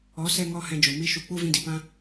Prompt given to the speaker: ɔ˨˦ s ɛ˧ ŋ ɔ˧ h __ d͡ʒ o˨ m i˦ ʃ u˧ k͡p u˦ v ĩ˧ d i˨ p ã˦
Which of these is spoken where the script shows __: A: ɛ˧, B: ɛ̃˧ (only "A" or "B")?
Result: B